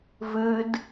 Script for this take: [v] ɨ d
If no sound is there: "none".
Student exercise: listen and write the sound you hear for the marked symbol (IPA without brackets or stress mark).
v